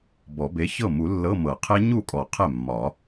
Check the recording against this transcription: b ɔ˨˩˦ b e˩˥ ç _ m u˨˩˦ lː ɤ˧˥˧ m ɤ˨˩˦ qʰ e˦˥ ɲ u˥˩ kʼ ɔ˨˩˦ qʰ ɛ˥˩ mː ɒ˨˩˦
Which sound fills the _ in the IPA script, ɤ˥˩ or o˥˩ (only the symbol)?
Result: ɤ˥˩